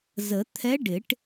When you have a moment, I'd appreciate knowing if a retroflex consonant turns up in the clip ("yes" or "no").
yes